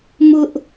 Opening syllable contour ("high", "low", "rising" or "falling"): high